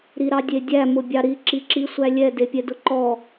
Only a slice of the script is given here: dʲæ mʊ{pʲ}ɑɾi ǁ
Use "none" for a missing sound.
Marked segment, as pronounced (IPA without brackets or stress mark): bʲ